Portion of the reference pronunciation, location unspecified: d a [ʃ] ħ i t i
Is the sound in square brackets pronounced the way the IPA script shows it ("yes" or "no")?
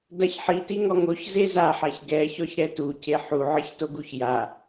no